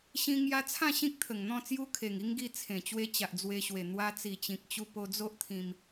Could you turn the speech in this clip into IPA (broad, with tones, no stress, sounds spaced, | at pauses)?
ɕ ĩ˧ ŋ j a˧ t͡sʰ ã˥˧ ɕ ĩ˦ k̚ t̪ʰ ə˨˩ ŋ n̪ ɔ̃˥˧ t͡s j u˦ kʰ e˨˩ ŋ i˦ ŋ ɡ i˧ t͡sʰ ẽ˨˩ t͡ɕ w e˧ t͡ɕ a˨ ʔ d͡z w e˧ ɕ w e˨˩ n̪ w a˧ t͡s i˨˩ t͡ɕ ĩ˨ k̚ t͡ɕ u˧ p o˧ d͡z o˦ ʔ t̪ʰ ĩ˧ m